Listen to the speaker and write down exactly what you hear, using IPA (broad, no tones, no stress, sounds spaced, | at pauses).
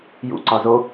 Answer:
j ṵ ǀ ɒ z o